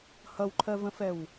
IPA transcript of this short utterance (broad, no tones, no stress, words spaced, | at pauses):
hʌwǃʰɜvə̃fɛw